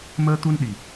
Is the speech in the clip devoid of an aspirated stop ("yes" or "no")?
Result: yes